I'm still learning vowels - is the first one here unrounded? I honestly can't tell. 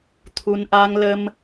no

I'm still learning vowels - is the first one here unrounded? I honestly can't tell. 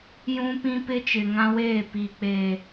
no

